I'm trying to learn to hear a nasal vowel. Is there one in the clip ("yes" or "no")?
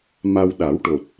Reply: no